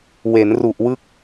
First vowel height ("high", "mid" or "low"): mid